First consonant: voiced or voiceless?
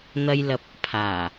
voiced